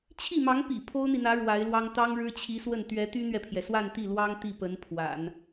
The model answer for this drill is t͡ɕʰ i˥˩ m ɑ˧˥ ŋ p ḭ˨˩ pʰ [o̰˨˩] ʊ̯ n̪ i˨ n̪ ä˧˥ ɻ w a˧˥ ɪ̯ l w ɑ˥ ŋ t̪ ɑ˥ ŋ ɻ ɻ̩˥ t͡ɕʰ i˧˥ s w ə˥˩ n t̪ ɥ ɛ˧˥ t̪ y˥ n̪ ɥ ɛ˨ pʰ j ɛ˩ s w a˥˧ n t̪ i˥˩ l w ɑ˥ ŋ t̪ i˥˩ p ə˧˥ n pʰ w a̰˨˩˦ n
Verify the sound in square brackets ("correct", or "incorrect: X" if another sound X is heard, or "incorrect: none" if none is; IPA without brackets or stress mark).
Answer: incorrect: o˥